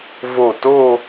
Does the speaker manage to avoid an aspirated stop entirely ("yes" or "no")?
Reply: yes